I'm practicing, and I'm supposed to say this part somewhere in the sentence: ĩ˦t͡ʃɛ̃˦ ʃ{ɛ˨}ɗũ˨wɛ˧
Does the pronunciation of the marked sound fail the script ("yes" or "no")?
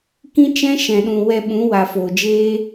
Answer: yes